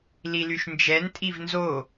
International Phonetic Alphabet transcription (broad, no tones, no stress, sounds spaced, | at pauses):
l i l y ʃ n d͡ʒ ɛ n tʼ i v n z o